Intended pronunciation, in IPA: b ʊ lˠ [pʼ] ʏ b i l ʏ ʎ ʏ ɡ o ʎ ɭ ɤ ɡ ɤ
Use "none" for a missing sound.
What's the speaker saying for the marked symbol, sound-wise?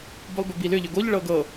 b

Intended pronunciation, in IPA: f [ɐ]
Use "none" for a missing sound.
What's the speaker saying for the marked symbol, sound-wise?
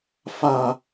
a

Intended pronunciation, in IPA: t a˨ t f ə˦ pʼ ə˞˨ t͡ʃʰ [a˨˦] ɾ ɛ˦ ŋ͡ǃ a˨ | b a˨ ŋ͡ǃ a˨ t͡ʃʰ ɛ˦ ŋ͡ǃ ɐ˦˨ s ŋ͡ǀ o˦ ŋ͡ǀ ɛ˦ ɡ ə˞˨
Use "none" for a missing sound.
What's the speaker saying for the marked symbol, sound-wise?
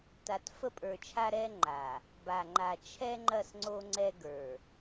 a˦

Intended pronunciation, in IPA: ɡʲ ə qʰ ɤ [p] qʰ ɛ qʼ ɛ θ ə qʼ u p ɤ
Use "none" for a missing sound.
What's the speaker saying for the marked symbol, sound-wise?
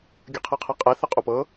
none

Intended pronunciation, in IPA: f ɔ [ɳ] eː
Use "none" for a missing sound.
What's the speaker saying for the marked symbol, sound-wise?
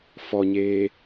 ɲ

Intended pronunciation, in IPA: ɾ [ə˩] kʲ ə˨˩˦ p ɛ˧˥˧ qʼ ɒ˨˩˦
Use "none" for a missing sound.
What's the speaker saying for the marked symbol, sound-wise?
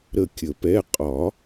ə˦˨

